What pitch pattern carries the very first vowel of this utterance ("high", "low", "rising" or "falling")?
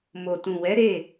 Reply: low